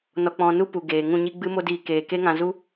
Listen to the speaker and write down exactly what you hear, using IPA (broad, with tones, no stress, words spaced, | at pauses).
nɔ˧k͡pɔ̃˧nu˦ pu˨ɡeː˨ ŋũ˦˨ɲi˦ ɡ͡bɨ˦mo˦diː˧keː˨ ke˦ŋã˧zu˦